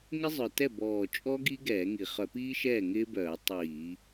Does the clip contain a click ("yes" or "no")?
no